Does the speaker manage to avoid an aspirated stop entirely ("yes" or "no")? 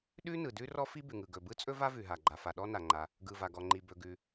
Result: yes